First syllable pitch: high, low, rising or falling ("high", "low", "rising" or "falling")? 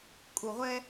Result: low